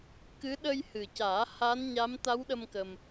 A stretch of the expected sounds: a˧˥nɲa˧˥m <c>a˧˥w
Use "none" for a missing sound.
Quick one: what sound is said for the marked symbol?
t̪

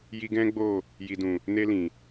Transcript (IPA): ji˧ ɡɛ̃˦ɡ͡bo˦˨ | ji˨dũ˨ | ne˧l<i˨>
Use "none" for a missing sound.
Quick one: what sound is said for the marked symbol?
ĩ˨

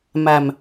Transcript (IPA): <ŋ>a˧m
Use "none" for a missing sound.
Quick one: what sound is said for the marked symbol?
m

